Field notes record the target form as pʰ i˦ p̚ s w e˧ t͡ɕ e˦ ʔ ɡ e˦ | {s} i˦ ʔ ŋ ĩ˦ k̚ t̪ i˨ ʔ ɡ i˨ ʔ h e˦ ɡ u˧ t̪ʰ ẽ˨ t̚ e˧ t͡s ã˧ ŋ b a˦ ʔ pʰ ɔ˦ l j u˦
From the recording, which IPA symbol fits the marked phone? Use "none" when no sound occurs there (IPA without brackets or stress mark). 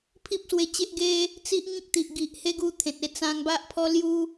t͡s